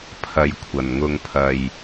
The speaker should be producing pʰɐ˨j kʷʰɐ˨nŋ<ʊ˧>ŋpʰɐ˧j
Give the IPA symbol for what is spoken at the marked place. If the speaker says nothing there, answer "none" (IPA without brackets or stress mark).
ʊ˧